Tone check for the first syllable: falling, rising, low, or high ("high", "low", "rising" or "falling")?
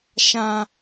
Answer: low